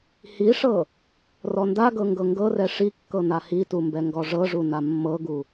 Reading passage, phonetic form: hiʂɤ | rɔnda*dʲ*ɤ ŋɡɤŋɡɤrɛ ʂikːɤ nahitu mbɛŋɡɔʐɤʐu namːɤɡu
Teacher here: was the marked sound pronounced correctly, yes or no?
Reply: no